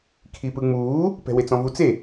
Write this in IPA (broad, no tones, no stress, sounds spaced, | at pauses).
kʰ i p ɯ ŋ͡m uː | p ɛ̤ w e t͡s ɔ̃ v u t͡s e